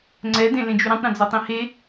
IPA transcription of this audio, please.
ŋ͡ǀ ɛ d ẽ l ẽ d͡ʒ y ɾ ĩ tˤ ɾ õ d͡z o tˤ ĩ h e

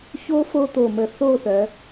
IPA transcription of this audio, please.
ç o˥ f o˥ t̪ o˧˩ m ə˧˩ θ o˥˧ θ œ˩˧

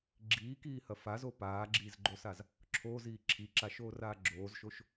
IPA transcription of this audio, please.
ɡ͡ǁ iː k iː h ɐ f a z o p aː ɡ͡ǁ iː z ɡ͡ǃ o s a z | ǁʰ oː z iː ǁʰ i ǁ a ʃ oː r aː ɡ͡ǁ oː z ʃ o ʃ

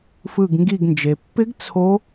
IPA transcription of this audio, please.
f ɯ˦˨ ɡ ŋ ɡ i˦˨ ɡ n d͡ʒ e˨ pː ɪ˦˥ ɡ t͡sʰ o˦˥

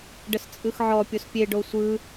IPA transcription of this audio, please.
ɖ ə s t͡sʼ ɯ x ʕ ɔ pʲ o s pʲ e ɖ o sʷ ɯ

